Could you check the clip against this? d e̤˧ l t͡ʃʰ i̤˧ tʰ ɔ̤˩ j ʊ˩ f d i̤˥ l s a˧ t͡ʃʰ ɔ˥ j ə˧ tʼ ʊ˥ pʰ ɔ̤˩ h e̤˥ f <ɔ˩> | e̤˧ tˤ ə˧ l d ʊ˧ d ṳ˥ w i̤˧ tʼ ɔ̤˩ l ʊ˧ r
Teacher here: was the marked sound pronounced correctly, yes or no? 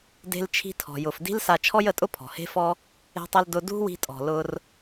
no